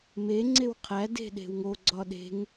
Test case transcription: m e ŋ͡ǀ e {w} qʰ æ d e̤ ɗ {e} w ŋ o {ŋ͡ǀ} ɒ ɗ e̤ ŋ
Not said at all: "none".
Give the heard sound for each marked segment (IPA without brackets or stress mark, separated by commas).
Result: w, e̤, ɡ͡ǀ